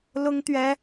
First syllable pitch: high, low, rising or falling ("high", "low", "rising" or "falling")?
high